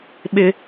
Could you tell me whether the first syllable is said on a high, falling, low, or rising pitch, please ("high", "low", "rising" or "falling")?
high